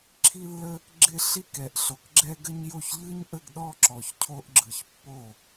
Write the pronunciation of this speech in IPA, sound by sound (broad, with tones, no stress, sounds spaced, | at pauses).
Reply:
ǁʰ i˥ lː ə˥ | ɡ͡ǁ ɪ˥˧ ɬ i˥˧ k ɛ˨ ʔ ɬ o˨ k ɡ͡ǁ ɛ˥ ɡ ə˥ ɲ j o˥˩ ç ʎ ɯ˥ ɲ ʔ ə˥˧ ɡ ɗ ɔ˥˧ ǁ ɔ˨ ç cʰ o˥ ʔ ɡ͡ǁ ɯ˨ ç pː o˥˩